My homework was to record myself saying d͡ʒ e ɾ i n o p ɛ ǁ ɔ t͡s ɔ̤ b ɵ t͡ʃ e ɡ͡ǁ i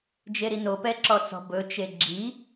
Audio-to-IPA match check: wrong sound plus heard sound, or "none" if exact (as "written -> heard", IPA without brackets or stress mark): none